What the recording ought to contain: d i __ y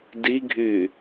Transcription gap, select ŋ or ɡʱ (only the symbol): ɡʱ